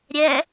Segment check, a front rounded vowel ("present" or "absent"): absent